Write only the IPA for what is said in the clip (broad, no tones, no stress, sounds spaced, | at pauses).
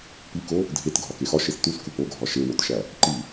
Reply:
p i k o | dʱ e t ɡʱ ɒ k e x ɒ ʃ e s t u s k u p o ɡʱ ɒ ʃ e w o t ʃ æ | ǃ i